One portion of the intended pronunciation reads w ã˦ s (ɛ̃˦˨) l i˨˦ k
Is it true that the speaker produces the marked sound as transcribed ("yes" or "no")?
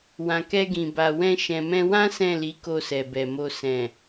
yes